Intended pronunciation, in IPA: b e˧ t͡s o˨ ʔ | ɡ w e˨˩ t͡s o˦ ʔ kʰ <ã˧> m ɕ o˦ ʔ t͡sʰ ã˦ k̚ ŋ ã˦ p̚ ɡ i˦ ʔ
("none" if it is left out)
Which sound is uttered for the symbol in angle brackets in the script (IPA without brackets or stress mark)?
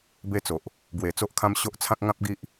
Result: ã˦